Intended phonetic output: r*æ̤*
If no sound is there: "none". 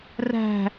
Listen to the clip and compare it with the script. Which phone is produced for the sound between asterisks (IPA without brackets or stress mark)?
æ̤